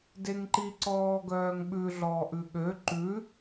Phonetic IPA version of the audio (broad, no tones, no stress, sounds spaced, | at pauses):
d e ŋ ǃ i ǀ ɔː ɡ œː ŋ ɓ ʉ ɮ ɔː ʔ ʉ ɠ ø ǃ ʉ